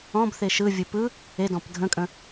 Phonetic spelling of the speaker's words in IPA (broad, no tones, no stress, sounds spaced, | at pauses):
ɔ̃ b θ e ʃ ɯ vʲ ɯ p ɯ | e d ɔ̃ p dʱ ə̃ kʼ ə̃